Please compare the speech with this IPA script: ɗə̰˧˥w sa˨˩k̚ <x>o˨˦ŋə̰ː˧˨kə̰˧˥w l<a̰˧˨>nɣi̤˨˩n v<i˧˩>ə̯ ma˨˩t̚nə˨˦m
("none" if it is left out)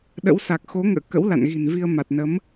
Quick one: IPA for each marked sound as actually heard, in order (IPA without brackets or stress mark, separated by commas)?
x, a̰˧˨, i˧